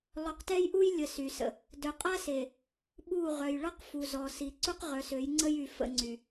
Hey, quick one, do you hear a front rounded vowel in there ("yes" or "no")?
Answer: yes